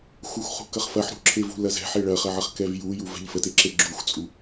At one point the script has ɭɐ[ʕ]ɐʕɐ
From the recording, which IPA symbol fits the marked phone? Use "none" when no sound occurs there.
χ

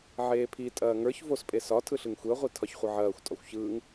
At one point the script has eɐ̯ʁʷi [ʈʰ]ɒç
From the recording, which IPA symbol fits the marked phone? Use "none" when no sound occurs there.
tʰ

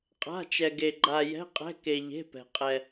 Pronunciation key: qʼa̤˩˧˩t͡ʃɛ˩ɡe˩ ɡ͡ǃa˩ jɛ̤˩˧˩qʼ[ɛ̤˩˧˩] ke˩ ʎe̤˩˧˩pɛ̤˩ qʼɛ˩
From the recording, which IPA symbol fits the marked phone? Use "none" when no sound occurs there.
ɛ̤˩˧˩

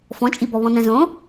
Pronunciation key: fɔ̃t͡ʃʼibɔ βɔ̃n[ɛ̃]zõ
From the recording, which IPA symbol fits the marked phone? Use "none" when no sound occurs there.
ɛ̃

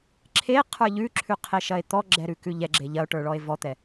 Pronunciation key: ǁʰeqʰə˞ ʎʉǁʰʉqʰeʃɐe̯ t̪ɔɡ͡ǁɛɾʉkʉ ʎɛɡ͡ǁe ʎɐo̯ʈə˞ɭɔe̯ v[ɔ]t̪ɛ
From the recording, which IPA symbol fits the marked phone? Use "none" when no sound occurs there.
ɔ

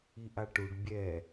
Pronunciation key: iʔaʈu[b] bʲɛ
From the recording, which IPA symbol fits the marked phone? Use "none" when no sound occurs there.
ɖ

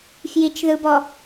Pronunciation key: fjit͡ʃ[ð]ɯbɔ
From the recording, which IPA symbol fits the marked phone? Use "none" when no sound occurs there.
ð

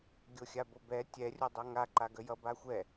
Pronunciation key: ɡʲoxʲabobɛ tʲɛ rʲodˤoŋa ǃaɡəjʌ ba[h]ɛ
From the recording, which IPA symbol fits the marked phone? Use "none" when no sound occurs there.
xʷ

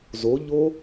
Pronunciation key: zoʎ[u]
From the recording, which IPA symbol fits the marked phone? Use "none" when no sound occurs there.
o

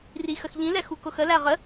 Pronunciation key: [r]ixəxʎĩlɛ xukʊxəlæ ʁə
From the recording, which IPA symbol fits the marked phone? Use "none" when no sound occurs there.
r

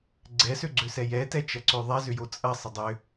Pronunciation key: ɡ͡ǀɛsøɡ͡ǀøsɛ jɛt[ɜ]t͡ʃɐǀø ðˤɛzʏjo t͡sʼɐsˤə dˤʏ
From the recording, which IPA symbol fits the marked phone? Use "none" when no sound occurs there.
ɛ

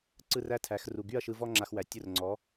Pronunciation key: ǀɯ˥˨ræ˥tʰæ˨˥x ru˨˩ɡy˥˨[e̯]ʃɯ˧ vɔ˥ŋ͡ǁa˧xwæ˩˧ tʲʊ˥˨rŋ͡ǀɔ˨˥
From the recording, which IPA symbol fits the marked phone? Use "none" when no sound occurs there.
ɐ̯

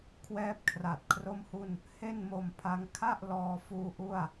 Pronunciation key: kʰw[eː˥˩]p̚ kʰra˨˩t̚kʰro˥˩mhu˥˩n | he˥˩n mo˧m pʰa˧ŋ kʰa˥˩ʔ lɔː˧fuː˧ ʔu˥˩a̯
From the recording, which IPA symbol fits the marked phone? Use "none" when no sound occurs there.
ɛː˥˩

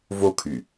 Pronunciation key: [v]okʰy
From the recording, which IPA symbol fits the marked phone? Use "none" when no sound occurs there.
v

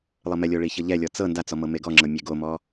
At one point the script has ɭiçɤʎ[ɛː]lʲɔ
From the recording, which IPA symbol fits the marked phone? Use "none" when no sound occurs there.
ɛ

